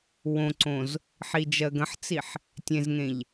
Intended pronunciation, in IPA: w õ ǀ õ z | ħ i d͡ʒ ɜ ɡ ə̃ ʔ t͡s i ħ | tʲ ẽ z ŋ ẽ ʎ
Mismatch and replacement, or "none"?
ʔ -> ħ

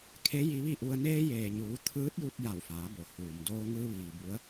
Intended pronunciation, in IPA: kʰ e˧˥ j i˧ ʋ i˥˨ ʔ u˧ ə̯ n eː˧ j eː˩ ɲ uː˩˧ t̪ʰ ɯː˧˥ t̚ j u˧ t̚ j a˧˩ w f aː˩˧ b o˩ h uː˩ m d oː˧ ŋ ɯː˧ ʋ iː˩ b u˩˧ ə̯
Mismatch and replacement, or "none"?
none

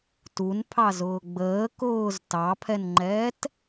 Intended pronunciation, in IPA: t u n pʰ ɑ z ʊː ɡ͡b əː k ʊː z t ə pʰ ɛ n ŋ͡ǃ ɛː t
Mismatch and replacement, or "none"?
ə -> ɑ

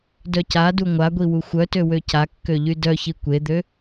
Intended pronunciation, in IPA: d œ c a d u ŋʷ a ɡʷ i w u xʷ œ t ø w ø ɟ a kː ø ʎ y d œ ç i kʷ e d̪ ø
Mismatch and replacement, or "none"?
ɟ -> c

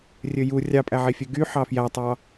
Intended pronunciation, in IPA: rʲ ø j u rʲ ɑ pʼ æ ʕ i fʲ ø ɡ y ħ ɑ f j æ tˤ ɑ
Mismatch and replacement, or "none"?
none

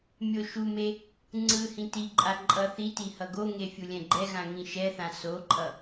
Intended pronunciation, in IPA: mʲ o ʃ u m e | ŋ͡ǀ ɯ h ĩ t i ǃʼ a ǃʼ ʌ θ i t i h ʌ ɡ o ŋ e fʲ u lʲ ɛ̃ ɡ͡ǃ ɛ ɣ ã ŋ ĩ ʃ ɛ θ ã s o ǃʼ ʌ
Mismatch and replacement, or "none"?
none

